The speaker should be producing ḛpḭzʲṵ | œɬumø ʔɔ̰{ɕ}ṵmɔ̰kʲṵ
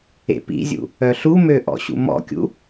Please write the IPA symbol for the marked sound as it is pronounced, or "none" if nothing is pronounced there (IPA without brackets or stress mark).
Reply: ɕ